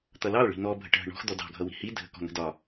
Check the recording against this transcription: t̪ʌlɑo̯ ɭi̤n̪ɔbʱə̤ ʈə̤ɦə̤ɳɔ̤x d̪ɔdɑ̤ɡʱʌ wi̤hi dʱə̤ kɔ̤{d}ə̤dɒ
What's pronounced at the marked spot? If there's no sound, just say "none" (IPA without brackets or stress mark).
n̪